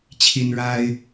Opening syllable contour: high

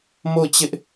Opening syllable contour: falling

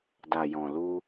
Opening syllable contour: low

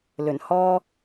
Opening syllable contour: low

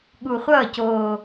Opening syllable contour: low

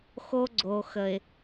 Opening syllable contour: high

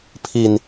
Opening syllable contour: low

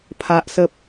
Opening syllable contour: high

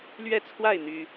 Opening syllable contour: falling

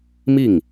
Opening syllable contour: falling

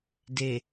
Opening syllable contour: low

